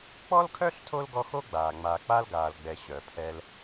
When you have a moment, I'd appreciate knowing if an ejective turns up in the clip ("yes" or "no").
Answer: no